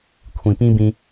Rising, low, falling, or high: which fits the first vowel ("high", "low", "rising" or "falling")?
low